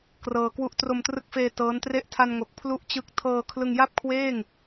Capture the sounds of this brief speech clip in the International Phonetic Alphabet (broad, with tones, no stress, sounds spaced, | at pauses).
k r ɤː˧ k w u˥˩ ʔ t r o˧ m t r ɯ˦˥ k̚ f eː˧ t ɤː˦˥ n t r e˥˩ ʔ tʰ a˧ n ŋ o˨˩ k̚ pʰ l u˥˩ ʔ t͡ɕ ɯ˦˥ k̚ tʰ ɤː˧ kʰ l ɯ˧ ŋ j a˥˩ p̚ kʰ w eː˥˩ ŋ